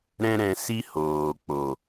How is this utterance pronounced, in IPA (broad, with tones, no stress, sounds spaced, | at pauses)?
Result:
ɾ ɛ̃˦ ɾ ɛ̃˧ s i˦ h oː˨ k͡p o˨